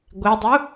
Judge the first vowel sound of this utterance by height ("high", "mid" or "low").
mid